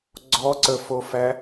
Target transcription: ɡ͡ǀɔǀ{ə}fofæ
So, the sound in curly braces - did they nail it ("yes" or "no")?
yes